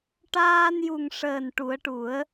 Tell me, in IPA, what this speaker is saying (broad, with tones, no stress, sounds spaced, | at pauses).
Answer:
ʈ aː˧ n j u˨˩ ŋ ʂ əː˨˩ n ʈ u˨˩˦ ə̯ ʈ u˨˩˦ ə̯